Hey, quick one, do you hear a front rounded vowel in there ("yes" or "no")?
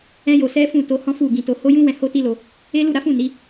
no